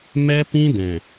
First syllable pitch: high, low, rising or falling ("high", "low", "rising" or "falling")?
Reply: high